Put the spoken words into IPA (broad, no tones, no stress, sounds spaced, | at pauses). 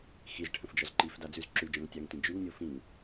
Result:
x i z ʈʰ ə̃ f d͡ʒ ɔ z ǃ i f d a d͡z ʉ z ǁ ʉ d͡ʒ ɔ̃ ŋ tʲ a ŋ t ĩ d͡ʒ ʉ ŋ nʲ o f ĩ ŋ